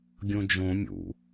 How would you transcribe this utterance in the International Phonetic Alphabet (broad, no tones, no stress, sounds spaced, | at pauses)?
ɡʲ õ d͡ʒ õ mʲ ṵ